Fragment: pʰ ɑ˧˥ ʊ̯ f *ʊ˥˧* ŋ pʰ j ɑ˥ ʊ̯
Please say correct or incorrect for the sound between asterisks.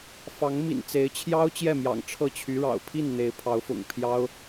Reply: incorrect